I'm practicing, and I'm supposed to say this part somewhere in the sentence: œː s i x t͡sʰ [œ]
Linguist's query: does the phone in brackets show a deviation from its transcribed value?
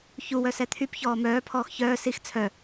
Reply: no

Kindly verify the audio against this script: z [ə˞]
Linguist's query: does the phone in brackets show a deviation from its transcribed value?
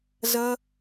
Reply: yes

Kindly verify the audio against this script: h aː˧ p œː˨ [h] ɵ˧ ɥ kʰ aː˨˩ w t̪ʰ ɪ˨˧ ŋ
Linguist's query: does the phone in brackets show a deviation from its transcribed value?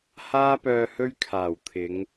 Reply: no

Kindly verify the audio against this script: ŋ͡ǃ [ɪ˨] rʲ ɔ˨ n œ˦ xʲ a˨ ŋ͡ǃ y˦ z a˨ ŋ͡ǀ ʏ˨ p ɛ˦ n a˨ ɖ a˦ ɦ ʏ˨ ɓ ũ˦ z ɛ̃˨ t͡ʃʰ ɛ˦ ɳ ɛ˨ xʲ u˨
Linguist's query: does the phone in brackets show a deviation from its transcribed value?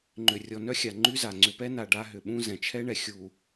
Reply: yes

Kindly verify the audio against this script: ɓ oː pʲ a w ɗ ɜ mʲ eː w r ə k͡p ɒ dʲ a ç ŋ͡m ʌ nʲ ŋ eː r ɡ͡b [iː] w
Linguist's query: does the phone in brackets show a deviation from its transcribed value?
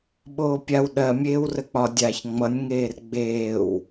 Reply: yes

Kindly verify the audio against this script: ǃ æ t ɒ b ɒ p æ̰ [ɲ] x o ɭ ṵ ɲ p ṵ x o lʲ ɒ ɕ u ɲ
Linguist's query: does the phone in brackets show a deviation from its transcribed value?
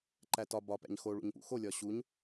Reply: no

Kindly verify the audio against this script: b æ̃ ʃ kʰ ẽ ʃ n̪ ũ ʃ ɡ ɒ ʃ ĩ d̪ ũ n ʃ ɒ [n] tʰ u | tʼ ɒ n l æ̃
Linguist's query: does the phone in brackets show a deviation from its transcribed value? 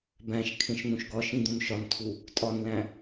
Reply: no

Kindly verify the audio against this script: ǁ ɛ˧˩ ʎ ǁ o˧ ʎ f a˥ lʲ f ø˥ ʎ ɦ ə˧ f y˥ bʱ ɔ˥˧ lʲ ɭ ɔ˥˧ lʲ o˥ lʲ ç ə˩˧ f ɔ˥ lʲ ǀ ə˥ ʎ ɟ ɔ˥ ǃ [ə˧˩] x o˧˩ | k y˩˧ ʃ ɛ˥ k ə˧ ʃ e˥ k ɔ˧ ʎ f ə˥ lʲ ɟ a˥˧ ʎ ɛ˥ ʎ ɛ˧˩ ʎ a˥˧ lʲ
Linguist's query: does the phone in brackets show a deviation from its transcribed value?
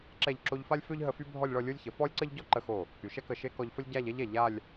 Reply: yes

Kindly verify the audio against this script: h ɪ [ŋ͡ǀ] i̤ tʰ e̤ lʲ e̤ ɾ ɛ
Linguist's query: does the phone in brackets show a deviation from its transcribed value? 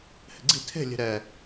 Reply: yes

